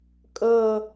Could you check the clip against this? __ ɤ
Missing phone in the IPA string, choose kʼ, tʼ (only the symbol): kʼ